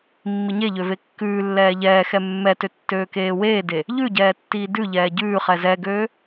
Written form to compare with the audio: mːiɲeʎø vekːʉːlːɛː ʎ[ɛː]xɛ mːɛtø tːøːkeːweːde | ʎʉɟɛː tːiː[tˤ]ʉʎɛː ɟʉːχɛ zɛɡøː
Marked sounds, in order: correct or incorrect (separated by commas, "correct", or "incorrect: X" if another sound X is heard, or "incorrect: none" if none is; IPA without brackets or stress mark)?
correct, incorrect: d